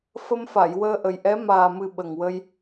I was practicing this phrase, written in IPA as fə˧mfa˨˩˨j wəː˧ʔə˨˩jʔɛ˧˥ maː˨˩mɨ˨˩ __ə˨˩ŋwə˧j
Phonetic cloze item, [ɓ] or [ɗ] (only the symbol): ɓ